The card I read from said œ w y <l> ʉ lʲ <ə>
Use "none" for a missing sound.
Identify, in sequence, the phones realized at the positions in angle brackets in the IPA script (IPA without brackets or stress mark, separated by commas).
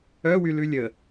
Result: l, ə